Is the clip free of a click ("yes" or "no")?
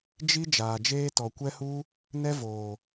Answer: yes